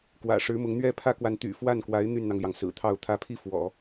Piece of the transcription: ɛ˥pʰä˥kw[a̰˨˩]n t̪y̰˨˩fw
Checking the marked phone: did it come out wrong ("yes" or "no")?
yes